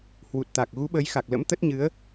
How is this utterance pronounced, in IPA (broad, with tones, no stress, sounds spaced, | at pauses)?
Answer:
h w u˨˩ t̚ t̪ a˨˩ k̚ ɣ u˨˦ ɓ əː˨˦ j x a˨˩ k̚ l ə̰˧˥ m t̪ ə˦˥ t̚ ɲ ɨ˨˦ ə̯